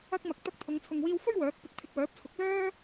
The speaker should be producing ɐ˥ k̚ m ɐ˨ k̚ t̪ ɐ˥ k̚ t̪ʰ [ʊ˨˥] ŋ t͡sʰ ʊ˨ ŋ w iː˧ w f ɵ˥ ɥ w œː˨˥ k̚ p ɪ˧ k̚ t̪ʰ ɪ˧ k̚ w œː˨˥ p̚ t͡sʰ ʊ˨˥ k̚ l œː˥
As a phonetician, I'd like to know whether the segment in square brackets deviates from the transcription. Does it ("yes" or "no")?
yes